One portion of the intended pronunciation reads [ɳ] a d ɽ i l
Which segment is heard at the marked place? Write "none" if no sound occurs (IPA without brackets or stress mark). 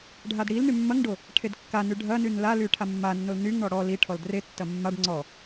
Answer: ɖʱ